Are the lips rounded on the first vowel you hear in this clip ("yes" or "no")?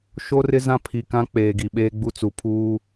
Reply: yes